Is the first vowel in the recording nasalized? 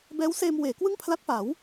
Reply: no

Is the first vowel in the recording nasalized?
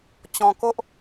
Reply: yes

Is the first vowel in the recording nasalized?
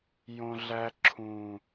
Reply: yes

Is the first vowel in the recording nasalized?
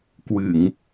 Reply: no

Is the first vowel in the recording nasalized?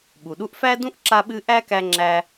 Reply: no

